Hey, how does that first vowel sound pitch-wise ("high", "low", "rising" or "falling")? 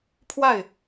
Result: falling